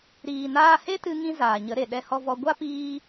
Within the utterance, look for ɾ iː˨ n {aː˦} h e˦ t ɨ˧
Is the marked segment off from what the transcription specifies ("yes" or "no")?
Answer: yes